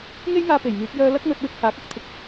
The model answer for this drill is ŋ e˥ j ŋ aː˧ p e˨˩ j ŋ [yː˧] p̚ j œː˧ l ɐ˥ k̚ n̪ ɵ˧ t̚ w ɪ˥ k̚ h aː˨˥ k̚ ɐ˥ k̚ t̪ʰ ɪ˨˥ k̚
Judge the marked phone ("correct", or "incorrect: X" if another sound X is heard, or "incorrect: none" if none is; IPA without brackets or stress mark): incorrect: yː˨˥